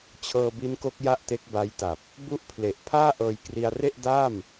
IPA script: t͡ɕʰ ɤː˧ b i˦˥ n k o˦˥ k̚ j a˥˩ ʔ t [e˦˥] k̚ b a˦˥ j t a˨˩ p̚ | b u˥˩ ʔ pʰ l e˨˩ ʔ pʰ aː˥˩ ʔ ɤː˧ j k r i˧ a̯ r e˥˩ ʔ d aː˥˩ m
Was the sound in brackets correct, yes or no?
yes